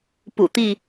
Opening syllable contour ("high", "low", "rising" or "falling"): low